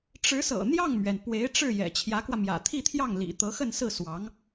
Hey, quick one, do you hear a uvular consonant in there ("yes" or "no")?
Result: no